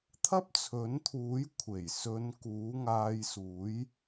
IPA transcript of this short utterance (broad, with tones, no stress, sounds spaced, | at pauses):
t̪ʰ ɐ˥ p̚ t͡sʰ ɵ˨˥ n t̪ʰ uː˨˥ j kʷʰ e˨˩ j s ɵ˨˧ n k uː˨˥ ŋ aː˧ j s uː˨˥ j